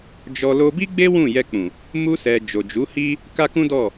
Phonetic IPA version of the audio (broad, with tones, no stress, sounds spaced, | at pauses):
d͡ʒ ɔ˧ l o˧ b i˦ ɡ͡b e˦ w ũ˦˨ j ɛ˧ k͡p ũ˨ | m u˧ s ɛ˨ d͡ʒ o˨ d͡ʒ u˨˦ h i˦ | k a˦ k ũ˦ d ɔ˦˨